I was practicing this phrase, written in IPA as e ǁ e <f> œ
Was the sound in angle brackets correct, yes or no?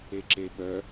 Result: no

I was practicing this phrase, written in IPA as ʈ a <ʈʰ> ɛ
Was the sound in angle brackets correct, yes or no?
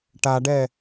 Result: no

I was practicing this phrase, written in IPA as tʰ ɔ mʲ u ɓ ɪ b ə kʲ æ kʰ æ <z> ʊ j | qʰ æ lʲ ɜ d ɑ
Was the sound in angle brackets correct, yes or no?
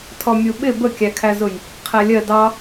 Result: yes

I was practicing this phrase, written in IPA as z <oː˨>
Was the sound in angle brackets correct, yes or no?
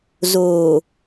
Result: yes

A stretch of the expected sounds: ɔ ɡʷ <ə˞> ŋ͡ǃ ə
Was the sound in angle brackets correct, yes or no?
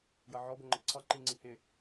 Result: no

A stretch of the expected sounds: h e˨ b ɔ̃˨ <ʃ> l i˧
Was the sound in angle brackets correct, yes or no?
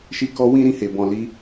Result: no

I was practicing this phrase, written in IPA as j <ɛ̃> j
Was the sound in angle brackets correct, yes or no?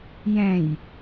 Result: yes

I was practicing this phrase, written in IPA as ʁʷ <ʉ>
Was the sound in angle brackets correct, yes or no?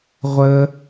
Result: no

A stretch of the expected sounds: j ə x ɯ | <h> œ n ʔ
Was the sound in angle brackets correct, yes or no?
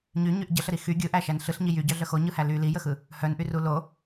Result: yes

